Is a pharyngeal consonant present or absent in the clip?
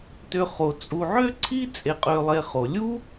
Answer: present